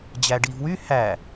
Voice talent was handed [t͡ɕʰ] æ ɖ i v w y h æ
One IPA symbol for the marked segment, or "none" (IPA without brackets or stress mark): d͡ʑ